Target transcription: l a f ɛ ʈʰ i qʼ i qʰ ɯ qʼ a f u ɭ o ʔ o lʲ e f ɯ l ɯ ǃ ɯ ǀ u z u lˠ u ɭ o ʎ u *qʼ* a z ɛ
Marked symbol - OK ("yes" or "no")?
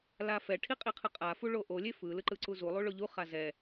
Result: no